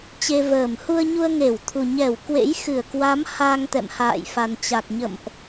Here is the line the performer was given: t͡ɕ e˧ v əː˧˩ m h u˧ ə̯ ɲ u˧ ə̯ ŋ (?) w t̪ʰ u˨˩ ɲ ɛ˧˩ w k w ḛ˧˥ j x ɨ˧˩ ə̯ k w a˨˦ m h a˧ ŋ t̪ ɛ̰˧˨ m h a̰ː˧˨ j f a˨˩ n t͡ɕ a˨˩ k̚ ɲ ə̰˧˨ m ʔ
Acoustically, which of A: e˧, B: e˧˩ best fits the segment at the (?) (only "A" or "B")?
B